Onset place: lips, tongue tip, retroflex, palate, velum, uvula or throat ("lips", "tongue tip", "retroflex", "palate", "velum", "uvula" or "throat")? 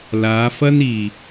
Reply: tongue tip